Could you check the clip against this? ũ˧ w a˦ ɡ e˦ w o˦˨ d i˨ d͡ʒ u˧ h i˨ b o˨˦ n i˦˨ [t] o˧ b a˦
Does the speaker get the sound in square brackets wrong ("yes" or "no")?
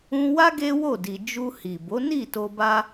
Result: no